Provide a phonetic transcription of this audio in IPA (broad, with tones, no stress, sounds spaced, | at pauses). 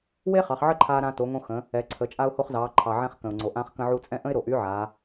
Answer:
w e˥ χ ɑ˩˧ χ ʕ ə˥ ǃʰ aː˧ ɾ ãː˧ t o˩˧ ŋ õ˧ x ə̃˩˧ | ɛ˩˧ ǀʰ ə˩˧ t͡ʃʼ a˧ ʊ̯ h o˧ χ z ɑː˩˧ ǃʰ ɑ˩ ʕ ɛ̃˧ χ k ə̃˩ ʊ̯ ŋ͡ǀ o˩ ʔ ãː˧ χ k ə̃˧ ʕ u˧ t͡sʼ ɛ̃˥ ʔ ə̃˥ ɪ̯ ɾ o˩ ʔ y˧˥ ʕ aː˩˧